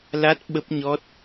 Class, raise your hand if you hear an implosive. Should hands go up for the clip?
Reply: yes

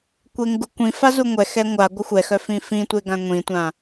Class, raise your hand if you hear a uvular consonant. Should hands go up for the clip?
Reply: no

